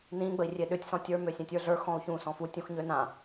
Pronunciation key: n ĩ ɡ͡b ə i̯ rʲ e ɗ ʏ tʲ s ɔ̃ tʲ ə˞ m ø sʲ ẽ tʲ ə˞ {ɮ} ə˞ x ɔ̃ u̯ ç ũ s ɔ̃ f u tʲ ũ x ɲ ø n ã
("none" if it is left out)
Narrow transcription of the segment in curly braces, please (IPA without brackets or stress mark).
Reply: ɮ